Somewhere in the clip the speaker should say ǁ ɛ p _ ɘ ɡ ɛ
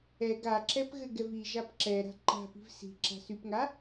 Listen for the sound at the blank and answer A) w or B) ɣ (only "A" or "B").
B